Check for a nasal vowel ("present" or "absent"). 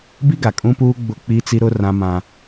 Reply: present